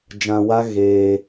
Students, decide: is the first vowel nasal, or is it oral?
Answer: nasal